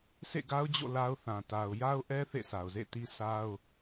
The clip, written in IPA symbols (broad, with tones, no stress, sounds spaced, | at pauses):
s ḛ˦˨ ɡ a˦ ʊ̯ d͡ʑ o̰˦˨ l a˦ ʊ̯ θ ã˨ t a˨ ʊ̯ j a˦ ʊ̯ ʔ ɛ˦ θ ḛ˦˨ sʰ a˨ ʊ̯ z ḛ˦˨ t i˦ sʰ a˦ ʊ̯